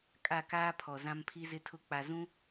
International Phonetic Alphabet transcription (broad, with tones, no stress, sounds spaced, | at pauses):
kʼ a˦˨ k aː˦ pʰ ɔ˨ z ã˦ m pʰ i˦ z ɪ˦ tʰ ʊ˦ k͡p a˨ z ũ˦